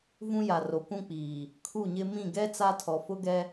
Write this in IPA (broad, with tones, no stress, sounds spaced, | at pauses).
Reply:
v ũ˦ j a˨ r o˨ kʷ ũ˦ k͡p iː˨ | kʰ u˦˨ ɲ ɪ˦ m ĩ˦˨ ɡ ɛ˦ t͡s a˦ tʰ ɔ˨ f ʊ˦ ɡ ɛ˦